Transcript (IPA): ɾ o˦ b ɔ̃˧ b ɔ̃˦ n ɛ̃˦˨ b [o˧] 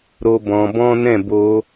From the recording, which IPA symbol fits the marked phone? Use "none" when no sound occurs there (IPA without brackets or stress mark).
o˧